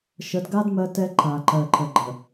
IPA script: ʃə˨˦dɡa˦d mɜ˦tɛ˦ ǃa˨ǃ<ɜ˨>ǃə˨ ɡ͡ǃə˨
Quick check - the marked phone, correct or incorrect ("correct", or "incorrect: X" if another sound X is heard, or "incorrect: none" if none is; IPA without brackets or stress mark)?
correct